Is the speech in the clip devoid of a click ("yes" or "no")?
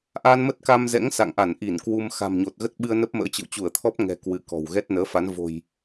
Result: yes